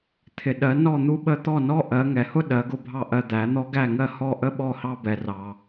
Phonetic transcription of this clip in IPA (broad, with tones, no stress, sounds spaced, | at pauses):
t̪ʰ ɪ˩ ɗ ɜ˩˥ n ɔ˥˩ n̪ u˥ ɓ ə˥ t̪ ɔ˥˩ n ɔ˥ ʔ ɜ˩˥ ŋ ɛ˩ h ʊ˥ ɗ ɜ˩˥ ɡ ʊ˥˩ bʱ ɑ˥˩ ʔ ɜ˧ d̪ æ˩˥ n̪ ɔ˥ ɡ æ˥˩ ŋ ɜ˥˩ h ɔ˥˩ ʔ ə˥ ɓ ɔ˥˩ h ɑ˥ b ɛ˩ r ɑ˩